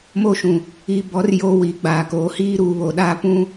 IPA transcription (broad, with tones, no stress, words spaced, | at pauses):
mo˦ʃũ˨ | i˨bɔ˨˦r jo˦ wi˨˦ɡ͡baː˨koː˨˦ hiː˦ɾuː˨βo˨ɗaː˦ pũ˦